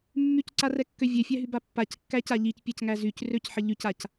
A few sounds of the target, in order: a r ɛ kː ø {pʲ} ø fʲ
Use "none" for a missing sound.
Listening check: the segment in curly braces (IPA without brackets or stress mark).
vʲ